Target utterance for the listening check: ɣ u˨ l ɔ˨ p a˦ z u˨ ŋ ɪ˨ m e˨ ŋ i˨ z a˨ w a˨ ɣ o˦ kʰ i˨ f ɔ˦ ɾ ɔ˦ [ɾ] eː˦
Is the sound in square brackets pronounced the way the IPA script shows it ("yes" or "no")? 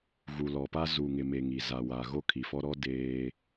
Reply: no